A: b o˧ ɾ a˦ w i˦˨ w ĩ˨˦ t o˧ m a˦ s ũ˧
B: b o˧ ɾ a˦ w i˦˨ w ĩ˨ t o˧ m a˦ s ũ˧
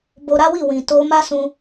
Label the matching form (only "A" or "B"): B